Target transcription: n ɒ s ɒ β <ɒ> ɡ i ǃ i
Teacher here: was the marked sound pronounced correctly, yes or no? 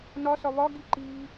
yes